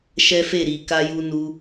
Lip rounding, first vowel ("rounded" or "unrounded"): unrounded